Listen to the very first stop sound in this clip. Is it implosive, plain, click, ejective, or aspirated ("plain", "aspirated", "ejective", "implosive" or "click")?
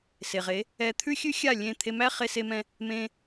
aspirated